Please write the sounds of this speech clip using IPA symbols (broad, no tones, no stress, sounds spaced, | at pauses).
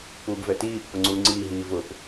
p uː b v ɛ t iː pː ʊ ŋ͡ǀ uː ŋ͡ǀ iː ɦ iː v ʊ p